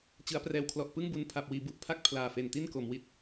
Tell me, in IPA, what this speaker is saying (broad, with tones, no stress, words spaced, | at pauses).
t͡ɕɯ˩˦a̯prɛː˨˩wkʰlɔ˨˩ʔ pɯ˥˩ŋbu˧n pʰa˨˩p̚wiː˩˦bu˨˩ʔpʰa˥˩k̚ pʰlaː˨˩fe˨˩nti˥˩n ko˩˦mwi˦˥t̚